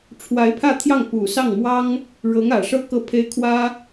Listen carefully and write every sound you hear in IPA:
ʈ͡ʂʰ w a˧˥ ɪ̯ pʰ ä˥˧ t̪ʰ j ɑ˥˩ ŋ p u˨˩ s ɑ˥˩ ŋ m w ɑ˥ ŋ | ɻ ɤ˧˥ ŋ ä˨˩ ʂ ɤ˥ k ɤ˥˩ pʰ e˥ ɪ̯ kʰ w ä˥

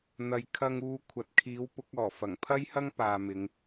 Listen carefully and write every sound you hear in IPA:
n̪ ɐ˨ j kʰ ɐ˨ ŋ uː˨ kʷʰ ɐ˨ t̚ kʰ iː˨˥ w p ʊ˨˥ k̚ ɔː˨˩ f ɐ˨˩ ŋ pʰ ɐ˥ j h ɐ˥ ŋ p aː˨ m ɪ˨˧ ŋ

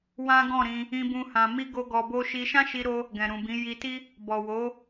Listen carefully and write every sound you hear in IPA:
w ã˦ ɡ ɔ̃˦˨ ɾ ĩ˧ | ĩ˦ b ũ˦ h ã˧ m i˦ ɡ o˦ ɡ ɔ˧ b o˦ ʃ i˧ ʃ ã˦ ʃ i˧ ɾ o˧ | ɡ ɛ̃˨ ɾ ũ˨ b ĩ˨˦ j i˧ t i˦ | b ɔ˨ w o˨˦

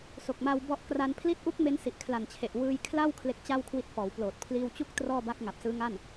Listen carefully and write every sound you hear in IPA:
s o˨˩ k̚ m a˧ w b ɔ˦˥ ʔ k r a˧ n pʰ l i˦˥ t̚ ʔ u˦˥ k̚ m e˦˥ n s i˨˩ ʔ kʰ l a˨˩ n t͡ɕʰ e˨˩ ʔ w ɯː˧ j kʰ l a˥˩ w kʰ l e˦˥ k̚ t͡ɕ a˥˩ w kʰ w i˦˥ t̚ f ɔː˩˦ w p l oː˨˩ t̚ pʰ l iː˧ w t͡ɕ u˦˥ k̚ t r ɔː˥˩ b a˦˥ k̚ ŋ a˨˩ p̚ s ɯː˦˥ ŋ a˥˩ n

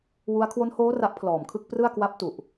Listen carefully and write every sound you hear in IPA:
w u˦˥ a̯ kʰ w o˦˥ n h oː˦˥ r a˦˥ ʔ pʰ l ɔː˨˩ m kʰ ɯ˥˩ k̚ p r ɯ˥˩ a̯ k w a˦˥ p̚ t u˨˩ ʔ

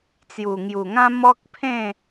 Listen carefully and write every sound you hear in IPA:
t͡s j u˨˩ ŋ j u˨˩ ŋ ã˦ m ɔ˦ k̚ pʰ ẽ˥˧

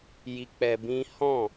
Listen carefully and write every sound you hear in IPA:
j i˧ k͡p ɛ˧ b ĩ˦ h ɔ̃˦˨

